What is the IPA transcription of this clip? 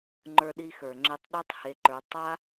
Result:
ŋ͡ǃə˞˧ɗi˧xə˞˨ŋ͡ǁe˧tˤ ɗə˞˦tˤhe˧ǃə˞˧ tˤa˦

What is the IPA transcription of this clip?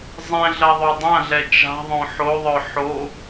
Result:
zˤɛ̃ɮɐ ðˤodˤãɮɛ t͡ʃa̤ðˤõ ħoðˤœ ħo

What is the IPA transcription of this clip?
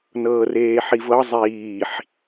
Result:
nɤːreːħivɤ zˤiːħ

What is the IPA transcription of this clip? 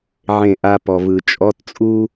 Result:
ʕẽ˥˧ʔa˥ pɔ˨vɯ˨t͡ʃʼɔ˧˥˧t t͡sʼu˥

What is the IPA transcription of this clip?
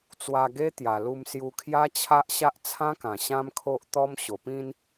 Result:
t͡swa˧ ɡe˦t̪ja˨˩lu˧m sju˧kʰja˦t͡ɕʰa˦ʔɕa˦ʔ t͡sʰã˦kã˨˩ ɕã˦mkʰo˦ʔ t̪ɔ˦m ɕo˨˩pĩ˦n

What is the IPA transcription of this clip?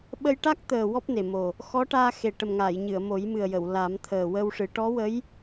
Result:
ɓə˧jʈa˦˥k̚t̪əː˨˩ wɔ˦˥p̚ne˨˩mo˨˩ | xɔ˧˥ ʈaː˧xe˨˩ʈə˨˩mŋaː˨˩˨j ɲɨ˨˩˨ə̯mo˨˩˦jmɨ˨˩ə̯jə˨˩˨w la˨˩˦mt̪ʰəː˨˩wə˧wʂɨ˨˩˦ ʈɔ˧˥wə˧˥j

